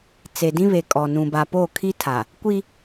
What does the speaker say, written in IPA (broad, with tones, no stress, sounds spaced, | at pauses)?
t͡s e˨ d ĩ˦ β e˨ kʼ ɔ˨ n ũ˨ b a˨ p o˦˨ kʰ i˦ tʰ a˨ | kʷ i˦